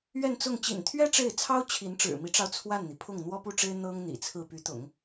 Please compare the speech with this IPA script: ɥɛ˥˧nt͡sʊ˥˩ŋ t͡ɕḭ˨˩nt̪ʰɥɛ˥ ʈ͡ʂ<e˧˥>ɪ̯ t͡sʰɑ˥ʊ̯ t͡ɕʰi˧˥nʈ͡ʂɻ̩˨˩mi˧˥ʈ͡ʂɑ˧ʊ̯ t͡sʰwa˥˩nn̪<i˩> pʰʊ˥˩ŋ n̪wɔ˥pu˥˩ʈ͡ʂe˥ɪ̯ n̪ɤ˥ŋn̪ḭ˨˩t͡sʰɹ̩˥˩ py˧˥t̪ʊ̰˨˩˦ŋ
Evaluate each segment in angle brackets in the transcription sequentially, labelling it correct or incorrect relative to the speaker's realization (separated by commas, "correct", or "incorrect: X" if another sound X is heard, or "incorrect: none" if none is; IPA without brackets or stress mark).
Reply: incorrect: e˥˩, correct